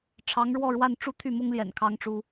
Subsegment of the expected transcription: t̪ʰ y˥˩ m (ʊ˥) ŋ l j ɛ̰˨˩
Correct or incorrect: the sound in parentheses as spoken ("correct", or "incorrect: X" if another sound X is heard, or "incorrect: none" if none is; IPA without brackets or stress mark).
correct